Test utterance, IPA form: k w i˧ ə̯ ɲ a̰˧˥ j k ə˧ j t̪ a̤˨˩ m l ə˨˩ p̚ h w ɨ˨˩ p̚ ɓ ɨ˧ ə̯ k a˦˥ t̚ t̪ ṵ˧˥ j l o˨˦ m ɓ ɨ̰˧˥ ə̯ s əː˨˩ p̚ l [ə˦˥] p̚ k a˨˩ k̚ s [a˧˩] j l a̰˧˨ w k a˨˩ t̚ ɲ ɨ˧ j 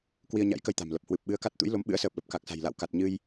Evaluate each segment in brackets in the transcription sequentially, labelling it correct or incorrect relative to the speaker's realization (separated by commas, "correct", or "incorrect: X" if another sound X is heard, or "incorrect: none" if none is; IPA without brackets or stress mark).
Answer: incorrect: ə˨˩, incorrect: a̤˨˩